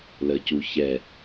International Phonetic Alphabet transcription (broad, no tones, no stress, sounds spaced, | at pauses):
l ə c u ç ɛ